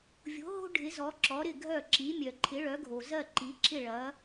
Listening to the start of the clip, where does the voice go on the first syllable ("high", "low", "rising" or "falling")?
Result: rising